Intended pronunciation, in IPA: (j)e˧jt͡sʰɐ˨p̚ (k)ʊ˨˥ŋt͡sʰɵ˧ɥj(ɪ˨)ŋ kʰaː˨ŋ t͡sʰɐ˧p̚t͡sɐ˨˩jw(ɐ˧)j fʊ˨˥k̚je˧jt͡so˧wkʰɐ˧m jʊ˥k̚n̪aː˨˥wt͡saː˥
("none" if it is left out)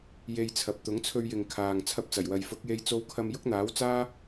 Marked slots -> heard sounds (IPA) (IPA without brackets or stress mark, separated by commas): j, t̪, ɪ˨, ɐ˨